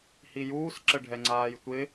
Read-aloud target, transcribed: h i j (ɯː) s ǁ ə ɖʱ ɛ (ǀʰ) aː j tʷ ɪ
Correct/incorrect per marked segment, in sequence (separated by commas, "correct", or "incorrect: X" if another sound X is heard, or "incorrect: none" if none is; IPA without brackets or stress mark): incorrect: uː, incorrect: ŋ͡ǀ